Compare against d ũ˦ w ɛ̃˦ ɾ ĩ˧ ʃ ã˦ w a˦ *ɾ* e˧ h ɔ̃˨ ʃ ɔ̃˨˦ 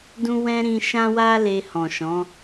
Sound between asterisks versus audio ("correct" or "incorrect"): incorrect